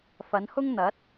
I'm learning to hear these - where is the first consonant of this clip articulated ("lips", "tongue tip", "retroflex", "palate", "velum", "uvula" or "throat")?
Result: lips